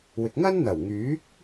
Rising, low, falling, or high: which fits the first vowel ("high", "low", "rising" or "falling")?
low